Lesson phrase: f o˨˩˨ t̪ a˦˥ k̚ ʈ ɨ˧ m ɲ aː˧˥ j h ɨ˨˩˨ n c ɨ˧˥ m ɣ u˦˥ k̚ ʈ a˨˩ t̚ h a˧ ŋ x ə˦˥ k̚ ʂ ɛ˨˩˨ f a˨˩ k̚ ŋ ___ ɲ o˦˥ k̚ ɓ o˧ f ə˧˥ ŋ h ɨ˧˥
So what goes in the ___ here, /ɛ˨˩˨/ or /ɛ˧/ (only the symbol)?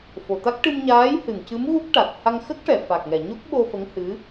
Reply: ɛ˨˩˨